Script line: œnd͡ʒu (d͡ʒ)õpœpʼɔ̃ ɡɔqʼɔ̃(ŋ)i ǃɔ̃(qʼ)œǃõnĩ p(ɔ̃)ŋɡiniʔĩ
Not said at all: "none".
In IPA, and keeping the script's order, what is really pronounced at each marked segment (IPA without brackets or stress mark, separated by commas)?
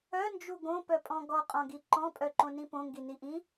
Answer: ɡ, ɡ, pʼ, õ